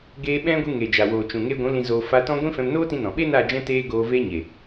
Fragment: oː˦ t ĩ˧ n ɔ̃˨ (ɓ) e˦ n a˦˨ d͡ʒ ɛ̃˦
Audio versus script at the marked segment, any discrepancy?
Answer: no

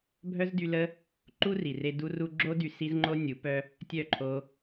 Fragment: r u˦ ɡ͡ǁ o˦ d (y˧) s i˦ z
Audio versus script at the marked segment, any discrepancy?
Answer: no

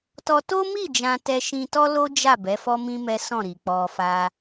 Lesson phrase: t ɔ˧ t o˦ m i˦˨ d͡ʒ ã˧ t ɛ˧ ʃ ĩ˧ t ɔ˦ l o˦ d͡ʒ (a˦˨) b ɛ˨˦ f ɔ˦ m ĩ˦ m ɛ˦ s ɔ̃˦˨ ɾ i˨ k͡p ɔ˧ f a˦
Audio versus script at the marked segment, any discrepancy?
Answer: no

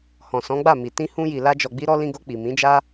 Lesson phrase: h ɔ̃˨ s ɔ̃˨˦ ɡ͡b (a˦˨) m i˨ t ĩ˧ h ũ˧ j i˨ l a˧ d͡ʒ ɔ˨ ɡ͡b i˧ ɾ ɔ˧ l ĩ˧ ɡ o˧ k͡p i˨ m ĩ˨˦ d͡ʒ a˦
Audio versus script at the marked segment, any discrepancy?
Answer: no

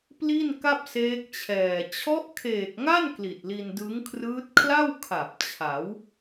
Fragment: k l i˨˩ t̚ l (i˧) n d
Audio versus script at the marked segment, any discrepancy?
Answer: no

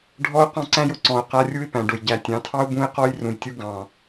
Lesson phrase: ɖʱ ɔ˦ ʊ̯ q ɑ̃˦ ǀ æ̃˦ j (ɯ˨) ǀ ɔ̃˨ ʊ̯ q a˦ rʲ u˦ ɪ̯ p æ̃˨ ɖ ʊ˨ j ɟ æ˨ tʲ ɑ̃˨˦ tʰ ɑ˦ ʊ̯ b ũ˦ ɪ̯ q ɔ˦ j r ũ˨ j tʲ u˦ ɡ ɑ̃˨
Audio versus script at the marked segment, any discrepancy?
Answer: yes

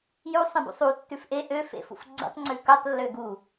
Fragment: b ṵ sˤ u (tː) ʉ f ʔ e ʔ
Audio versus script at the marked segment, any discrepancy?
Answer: no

